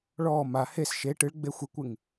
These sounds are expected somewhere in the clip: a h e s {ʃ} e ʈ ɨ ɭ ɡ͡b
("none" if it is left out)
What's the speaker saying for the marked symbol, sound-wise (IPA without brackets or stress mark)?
ʃ